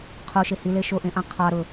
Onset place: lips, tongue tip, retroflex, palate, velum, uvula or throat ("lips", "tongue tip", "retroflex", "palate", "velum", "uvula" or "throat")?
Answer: uvula